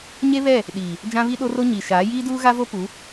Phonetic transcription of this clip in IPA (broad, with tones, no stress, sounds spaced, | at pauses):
ɲ e˦ β ɛ˦˨ | ɗ iː˨ | d͡ʒ ã˦ β i˦ ɗ o˦ r o˦ ɲ i˨ ʃ aː˨˦ j iː˦ d uː˦ ɣ a˦ v o˦ p u˨˦